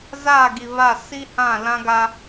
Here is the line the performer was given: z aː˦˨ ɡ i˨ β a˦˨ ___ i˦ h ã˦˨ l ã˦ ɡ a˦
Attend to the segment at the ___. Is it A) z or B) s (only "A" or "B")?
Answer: B